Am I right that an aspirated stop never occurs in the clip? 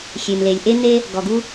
yes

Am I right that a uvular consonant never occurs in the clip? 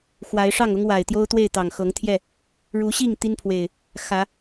yes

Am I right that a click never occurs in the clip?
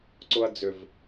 no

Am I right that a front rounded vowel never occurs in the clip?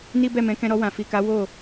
yes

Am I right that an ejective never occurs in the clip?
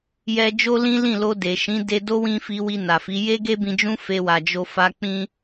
yes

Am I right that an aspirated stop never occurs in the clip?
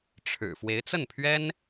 no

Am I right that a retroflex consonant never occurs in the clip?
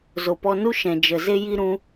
yes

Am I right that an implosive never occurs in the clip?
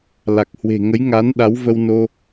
no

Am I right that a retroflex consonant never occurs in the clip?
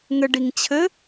no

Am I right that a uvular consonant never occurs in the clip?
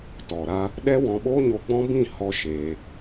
yes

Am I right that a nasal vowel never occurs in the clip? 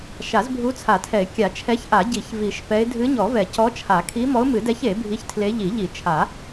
yes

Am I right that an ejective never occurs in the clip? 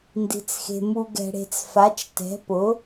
yes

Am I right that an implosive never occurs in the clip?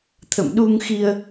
no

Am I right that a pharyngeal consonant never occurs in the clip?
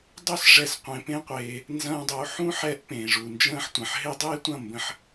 no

